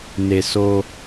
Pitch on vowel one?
high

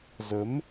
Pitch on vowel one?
rising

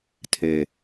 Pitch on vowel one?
low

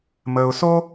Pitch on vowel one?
low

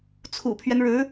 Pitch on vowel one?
low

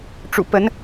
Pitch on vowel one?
low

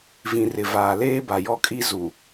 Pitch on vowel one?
low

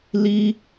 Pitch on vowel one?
high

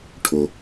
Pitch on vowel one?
low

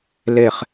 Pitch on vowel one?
falling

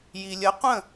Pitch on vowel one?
low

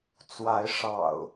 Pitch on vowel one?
rising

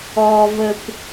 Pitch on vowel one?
low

